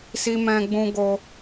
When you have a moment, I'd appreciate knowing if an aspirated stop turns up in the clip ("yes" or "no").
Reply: no